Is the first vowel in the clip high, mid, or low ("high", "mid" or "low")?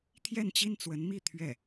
mid